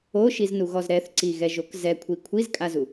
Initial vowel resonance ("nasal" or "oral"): oral